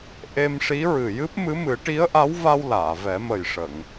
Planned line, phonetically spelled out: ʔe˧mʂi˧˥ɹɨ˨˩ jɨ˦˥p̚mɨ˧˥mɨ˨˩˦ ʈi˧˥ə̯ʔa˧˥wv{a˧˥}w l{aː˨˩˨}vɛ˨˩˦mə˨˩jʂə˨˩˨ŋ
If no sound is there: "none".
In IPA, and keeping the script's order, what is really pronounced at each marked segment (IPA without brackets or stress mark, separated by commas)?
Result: a˧, aː˨˩˨